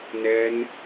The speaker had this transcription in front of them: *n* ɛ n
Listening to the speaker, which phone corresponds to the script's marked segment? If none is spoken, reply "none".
n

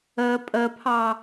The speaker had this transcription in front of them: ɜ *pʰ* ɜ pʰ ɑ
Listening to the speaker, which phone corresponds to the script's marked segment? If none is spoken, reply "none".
pʼ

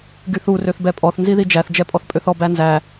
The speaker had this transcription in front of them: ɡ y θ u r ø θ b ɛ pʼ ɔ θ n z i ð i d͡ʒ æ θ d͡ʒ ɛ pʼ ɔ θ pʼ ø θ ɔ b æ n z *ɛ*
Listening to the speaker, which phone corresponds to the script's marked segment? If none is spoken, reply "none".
æ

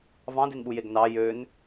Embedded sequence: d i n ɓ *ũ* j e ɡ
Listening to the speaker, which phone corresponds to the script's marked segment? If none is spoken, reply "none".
u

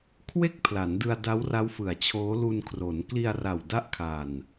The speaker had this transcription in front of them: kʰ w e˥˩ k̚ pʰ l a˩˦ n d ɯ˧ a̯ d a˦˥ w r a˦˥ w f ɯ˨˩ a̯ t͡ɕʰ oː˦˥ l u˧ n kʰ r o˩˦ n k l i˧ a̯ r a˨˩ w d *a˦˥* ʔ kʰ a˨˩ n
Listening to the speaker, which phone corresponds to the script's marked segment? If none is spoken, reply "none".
a˦˥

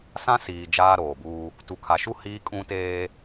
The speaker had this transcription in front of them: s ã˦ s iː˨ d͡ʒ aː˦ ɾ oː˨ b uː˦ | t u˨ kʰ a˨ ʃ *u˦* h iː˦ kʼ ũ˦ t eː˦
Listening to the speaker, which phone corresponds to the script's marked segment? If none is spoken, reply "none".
u˦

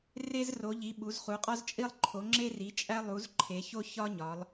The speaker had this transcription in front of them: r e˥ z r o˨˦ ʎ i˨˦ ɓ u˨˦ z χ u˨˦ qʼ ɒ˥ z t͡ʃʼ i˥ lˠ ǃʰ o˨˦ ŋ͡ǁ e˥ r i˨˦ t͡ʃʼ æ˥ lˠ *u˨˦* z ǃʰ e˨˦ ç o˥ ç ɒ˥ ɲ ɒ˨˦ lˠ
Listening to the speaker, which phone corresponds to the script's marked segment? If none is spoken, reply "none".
u˨˦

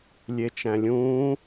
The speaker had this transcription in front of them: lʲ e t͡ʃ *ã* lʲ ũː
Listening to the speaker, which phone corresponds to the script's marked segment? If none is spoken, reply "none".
æ̃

